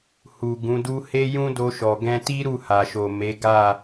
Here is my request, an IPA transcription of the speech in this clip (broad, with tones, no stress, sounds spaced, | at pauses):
h u˨ ɡ ũ˨˦ d u˦ h e˦ j ũ˦ d o˧ ʃ ɔ˨ ɡ ɛ̃˧ t i˦ ɾ u˦˨ h a˨ ʃ o˨ m e˨˦ ɡ a˦˨